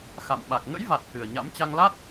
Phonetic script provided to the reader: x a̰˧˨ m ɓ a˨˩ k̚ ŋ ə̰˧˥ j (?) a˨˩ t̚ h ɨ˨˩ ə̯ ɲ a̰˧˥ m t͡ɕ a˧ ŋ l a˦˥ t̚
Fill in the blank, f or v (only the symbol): v